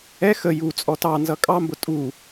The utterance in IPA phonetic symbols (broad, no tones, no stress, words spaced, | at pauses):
ɛ xə ju t͡sʼɔtɑnzʌ kʼɑmbʊ tʼu